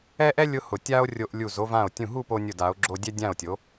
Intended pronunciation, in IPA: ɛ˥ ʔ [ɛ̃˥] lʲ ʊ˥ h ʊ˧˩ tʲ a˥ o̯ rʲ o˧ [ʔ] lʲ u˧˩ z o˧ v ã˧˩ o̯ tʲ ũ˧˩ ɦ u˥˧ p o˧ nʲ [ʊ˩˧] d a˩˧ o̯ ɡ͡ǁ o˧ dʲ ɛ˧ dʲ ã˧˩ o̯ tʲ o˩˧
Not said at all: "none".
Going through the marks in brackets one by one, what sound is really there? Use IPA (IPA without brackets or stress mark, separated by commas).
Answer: ɛ˥, ʔ, ʊ˧˩